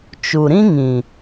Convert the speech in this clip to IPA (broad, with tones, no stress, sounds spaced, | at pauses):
t͡ʃ u˨ ɾ ĩ˦ ŋ ĩ˨